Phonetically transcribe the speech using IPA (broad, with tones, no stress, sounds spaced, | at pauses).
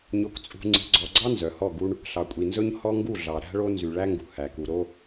ɲ o˨ k t͡sʼ ṳ˨ ŋ͡ǀ i̤˨ ɡ͡ǀ ɔ˨ ɡ͡ǀ ɑ˦ n z œ˨ h ɔ˦˨ ɡ u˦ ɳ | ɬ ɑ˨ kʷʼ i˨ n z ɵ˦ ɲ h ɔ˦ ŋ ɡ u˦˨ ɮ ɑ˨ ɾ æ̤˦ ɭ o˦ n z y˨ ɭ æ˦ ŋ ɡ ṳ˨ h æ˨ k u˨ ɾ o˦